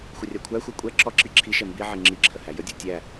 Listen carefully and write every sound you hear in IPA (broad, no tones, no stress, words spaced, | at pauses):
xʷərʲakʷʰæxʷæ kʷʼɛ ǁɔǁi ǁʰiʃɛ mbiʕi ŋ͡ǁiǁʰə hæjədʲɔ tʲæ